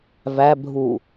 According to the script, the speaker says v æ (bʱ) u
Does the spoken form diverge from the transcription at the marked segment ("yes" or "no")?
no